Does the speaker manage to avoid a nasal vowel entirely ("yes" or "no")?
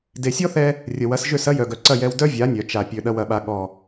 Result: yes